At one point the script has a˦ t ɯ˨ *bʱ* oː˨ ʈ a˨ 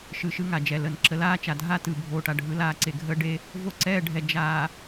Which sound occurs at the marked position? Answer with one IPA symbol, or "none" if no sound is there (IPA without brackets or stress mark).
bʱ